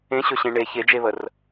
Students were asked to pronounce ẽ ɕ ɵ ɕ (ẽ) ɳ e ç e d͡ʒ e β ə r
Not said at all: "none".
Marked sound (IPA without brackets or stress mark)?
ẽ